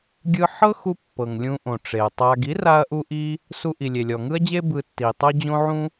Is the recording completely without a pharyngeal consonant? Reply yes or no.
no